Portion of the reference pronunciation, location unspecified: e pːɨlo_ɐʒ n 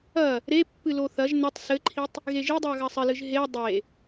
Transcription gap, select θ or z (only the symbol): θ